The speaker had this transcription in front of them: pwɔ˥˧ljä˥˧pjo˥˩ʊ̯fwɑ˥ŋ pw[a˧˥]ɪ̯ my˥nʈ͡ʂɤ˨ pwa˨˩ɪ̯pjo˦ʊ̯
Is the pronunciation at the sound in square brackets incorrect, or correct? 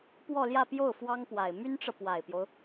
incorrect